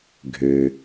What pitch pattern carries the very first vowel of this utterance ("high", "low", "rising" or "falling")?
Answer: low